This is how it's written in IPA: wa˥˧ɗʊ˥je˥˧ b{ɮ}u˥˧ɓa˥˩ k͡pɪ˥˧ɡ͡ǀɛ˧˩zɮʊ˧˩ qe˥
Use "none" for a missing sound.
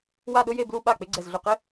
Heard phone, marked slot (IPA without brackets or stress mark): l